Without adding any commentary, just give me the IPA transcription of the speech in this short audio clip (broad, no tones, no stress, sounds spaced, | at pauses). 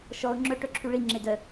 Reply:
ʃ ɔ ʊ̯ ŋ͡ǁ œ ʈ œ ǁʰ y ɭ i ŋ͡ǁ e d œ